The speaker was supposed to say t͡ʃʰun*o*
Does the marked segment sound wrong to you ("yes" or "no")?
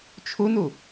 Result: yes